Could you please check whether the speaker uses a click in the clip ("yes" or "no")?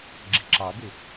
yes